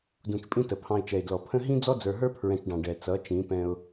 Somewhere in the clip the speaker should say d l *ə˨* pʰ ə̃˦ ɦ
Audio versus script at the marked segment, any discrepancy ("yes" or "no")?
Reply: yes